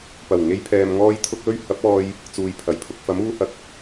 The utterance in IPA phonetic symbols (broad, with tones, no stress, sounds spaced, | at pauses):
p ɐ˨˩ w ŋ e˧ j pʰ ɛː˨ m ŋ ɔː˧ j t̪ʰ ʊ˧ k̚ l ɵ˧ ɥ h ɐ˨˥ p̚ ɔː˧ j | t͡s uː˨ j pʰ ɐ˨˩ j pʰ ʊ˨ k̚ f ɐ˨˥ m uː˧ h ɐ˨˥ k̚